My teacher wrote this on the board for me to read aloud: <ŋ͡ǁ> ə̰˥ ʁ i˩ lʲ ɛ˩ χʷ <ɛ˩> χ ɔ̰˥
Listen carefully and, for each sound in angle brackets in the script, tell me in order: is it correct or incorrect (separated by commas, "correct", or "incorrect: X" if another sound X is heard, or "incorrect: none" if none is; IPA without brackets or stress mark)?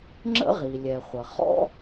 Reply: correct, incorrect: ə˩